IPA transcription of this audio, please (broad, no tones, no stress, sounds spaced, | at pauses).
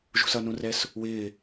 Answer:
ʒ ṳ s ʌ n ũ r ɛ s | w ɪː